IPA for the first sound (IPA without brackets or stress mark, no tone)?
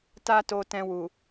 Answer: t